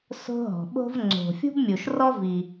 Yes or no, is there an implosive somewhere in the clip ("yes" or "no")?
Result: yes